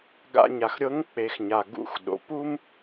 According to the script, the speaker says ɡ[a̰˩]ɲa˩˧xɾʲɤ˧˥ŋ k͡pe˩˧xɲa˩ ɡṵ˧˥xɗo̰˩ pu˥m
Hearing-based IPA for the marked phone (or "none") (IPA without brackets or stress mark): a̰˧